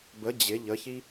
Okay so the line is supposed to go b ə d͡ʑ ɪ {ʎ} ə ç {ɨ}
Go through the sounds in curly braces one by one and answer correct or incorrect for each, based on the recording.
correct, incorrect: i

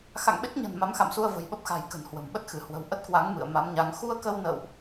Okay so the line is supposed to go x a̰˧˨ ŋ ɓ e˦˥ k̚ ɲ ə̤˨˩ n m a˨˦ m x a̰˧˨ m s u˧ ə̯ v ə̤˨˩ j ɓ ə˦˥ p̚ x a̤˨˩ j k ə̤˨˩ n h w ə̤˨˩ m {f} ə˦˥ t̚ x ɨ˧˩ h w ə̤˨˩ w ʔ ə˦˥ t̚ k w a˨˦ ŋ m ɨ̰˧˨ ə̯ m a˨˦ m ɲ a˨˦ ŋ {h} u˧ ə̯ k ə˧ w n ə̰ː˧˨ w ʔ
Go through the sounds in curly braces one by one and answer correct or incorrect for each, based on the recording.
incorrect: ɓ, incorrect: x

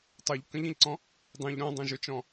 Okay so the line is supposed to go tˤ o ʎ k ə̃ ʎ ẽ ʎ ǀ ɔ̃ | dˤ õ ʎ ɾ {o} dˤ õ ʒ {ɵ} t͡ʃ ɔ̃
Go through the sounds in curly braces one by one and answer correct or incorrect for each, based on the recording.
incorrect: õ, correct

